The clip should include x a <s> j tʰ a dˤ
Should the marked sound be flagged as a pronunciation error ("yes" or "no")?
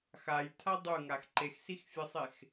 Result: yes